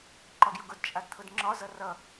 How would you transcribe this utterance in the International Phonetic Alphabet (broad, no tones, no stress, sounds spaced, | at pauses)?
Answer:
ǃ ɒ ɡ j ʊ ɡ ʊ d t͡ʃʼ a d t̪ʰ ʊ d ŋ͡ǁ ɒ z ʌ r ʌ